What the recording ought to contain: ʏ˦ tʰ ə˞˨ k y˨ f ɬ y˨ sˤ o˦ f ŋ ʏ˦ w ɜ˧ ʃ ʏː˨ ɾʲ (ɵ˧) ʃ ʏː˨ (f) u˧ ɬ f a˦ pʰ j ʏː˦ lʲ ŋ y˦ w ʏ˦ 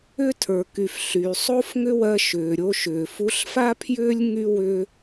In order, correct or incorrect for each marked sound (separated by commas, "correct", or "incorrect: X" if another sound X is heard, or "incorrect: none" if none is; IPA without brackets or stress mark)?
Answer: incorrect: o˧, correct